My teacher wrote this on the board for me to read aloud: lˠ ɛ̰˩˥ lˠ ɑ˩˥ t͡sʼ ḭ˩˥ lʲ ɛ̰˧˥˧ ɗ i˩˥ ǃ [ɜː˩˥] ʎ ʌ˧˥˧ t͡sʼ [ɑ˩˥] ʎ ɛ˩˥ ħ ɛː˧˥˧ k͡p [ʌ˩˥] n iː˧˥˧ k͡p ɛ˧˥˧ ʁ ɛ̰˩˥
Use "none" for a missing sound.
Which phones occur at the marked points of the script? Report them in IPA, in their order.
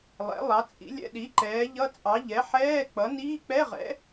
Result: ɛː˩˥, ɑ˩˥, ʌ˩˥

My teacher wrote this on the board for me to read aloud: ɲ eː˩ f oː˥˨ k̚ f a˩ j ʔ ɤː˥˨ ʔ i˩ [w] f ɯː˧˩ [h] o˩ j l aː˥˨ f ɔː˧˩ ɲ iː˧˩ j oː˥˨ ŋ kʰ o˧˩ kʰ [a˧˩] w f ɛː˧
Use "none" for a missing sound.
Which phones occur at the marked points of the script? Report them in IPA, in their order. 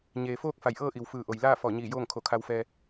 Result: w, ʔ, a˧

